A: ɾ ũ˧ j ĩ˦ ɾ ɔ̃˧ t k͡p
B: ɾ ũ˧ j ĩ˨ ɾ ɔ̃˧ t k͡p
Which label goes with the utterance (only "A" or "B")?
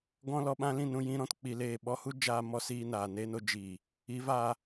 A